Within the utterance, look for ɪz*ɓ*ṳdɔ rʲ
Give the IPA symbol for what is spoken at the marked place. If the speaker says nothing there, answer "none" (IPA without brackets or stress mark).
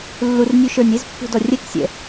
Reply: pː